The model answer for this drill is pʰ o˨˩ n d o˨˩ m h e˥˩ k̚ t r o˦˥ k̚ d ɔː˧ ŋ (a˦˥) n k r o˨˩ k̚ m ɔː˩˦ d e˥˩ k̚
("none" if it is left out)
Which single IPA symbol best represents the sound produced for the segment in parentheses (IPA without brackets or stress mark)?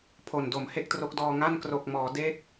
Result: a˥˩